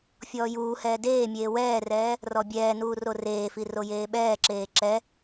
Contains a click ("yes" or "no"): yes